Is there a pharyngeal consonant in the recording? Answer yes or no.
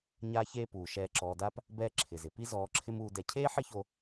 yes